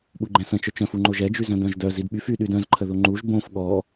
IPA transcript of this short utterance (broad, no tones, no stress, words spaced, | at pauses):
ɓuɡ͡ǃɛ̃sə̃ t͡ʃœt͡ʃœ̃f uŋ͡ǃoʒɛd͡ʒy zœ̃dœ̃ʒdœ zidɓyf y ɗydœ̃zǃʰəðo ŋ͡ǃuʒ bõf ɠɔ